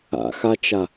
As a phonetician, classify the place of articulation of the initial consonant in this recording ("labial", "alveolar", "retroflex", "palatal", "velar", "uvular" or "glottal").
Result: velar